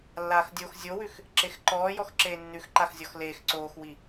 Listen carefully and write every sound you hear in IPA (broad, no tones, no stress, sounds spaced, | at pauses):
lː aː x dʲ o x zʲ o w ʉ x | ǁ e x ǃ ɔː j ɔ x ǁ eː nː ʉ x ǃ a x zʲ ɔ x l eː x ǀ oː x w i